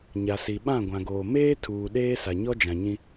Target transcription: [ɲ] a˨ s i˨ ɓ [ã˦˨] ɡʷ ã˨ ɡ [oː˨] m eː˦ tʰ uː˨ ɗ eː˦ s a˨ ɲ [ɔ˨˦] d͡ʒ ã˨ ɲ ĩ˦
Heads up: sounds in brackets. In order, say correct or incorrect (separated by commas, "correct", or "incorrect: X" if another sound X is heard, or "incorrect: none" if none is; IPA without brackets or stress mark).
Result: correct, correct, correct, incorrect: ɔ˦